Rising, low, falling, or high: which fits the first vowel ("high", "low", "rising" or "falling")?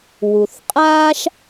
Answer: low